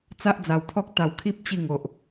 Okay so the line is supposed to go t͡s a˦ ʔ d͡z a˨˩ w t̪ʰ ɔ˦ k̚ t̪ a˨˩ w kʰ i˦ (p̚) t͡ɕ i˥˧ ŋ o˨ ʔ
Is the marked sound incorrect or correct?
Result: correct